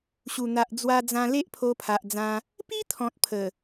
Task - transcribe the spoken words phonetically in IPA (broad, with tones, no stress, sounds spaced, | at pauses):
ɕ u˨˩ n̪ a˨ ʔ d͡z w a˧ d͡z ã˧ l e˦ ʔ pʰ o˧ pʰ a˨ ʔ d͡z ã˧ | p i˦ t̪ʰ ɔ̃˨ t̚ pʰ ə˨˩